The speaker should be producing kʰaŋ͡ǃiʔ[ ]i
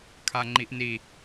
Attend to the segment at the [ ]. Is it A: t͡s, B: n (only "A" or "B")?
B